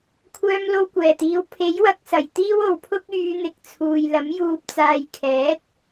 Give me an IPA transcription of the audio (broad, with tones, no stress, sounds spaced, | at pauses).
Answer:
kʷʰ œː˧ m l o˧ w kʷ ɛː˨˩ t̪ iː˨˥ w pʰ e˨˥ j w ɐ˨˥ k̚ s ɐ˨˩ j t̪ iː˥ w o˨ w pʰ ʊ˥ k̚ yː˨˧ n̪ ɪ˨ k̚ t͡sʰ uː˨ j l ɐ˨˥ m j uː˨ p̚ t͡s aː˨ j kʰ ɛː˨˥ t̚